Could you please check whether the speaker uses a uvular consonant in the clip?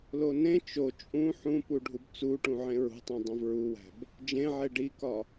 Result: no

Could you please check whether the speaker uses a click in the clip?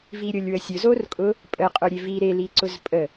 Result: yes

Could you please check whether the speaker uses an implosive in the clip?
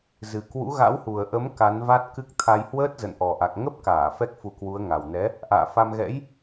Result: no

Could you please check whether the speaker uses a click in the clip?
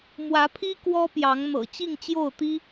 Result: no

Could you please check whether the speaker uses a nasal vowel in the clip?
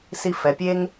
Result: no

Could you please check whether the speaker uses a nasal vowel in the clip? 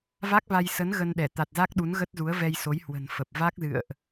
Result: no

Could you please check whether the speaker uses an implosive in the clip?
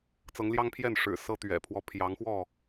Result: no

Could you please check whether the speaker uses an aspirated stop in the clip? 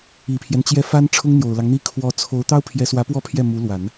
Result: yes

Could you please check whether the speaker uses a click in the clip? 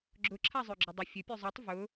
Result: yes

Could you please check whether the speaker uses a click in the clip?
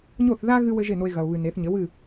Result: no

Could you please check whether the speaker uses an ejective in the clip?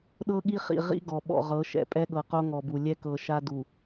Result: yes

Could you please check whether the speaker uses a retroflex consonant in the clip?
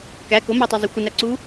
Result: no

